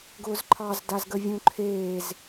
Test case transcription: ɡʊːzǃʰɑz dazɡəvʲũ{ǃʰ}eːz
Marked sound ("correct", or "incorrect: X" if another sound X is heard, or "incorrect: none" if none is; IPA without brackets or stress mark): correct